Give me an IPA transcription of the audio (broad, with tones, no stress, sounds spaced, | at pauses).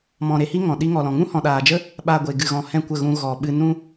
m ɔ̃˨ ɾ e˨ h i˦ ŋ ɔ̃˨ ɗ i˦ ŋ ɔ˨ l ɔ̃˨ ŋ ũ˦ h ɔ̃˨ ɗ aː˨ d͡ʒ ə˦ | ɓ a˧ ɡʷ e˨ ɡ ɨ˨ ɣ ɔ̃˨ h ɛ̃˦˨ kʷ ə˦˨ ɣ ũ˧ ɣ ɔ˨ ɓ ɨ˧ n ũ˦